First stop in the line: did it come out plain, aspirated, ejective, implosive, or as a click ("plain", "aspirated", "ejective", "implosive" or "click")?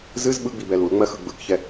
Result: implosive